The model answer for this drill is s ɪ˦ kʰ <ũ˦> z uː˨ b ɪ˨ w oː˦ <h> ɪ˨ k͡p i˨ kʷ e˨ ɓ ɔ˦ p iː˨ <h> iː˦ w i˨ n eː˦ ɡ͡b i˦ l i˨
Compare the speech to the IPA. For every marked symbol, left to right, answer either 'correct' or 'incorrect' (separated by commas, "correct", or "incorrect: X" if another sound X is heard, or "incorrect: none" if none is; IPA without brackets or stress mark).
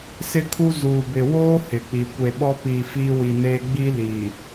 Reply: incorrect: u˦, correct, incorrect: f